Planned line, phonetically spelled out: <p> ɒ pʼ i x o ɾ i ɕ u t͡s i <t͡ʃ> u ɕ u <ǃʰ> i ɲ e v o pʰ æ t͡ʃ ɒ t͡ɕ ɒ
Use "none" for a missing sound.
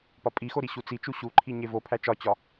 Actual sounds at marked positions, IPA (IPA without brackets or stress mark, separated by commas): p, t͡ʃ, ǃʰ